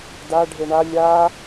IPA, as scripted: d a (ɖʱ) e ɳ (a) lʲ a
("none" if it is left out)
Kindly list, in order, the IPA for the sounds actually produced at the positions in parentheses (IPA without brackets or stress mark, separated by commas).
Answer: ɖʱ, a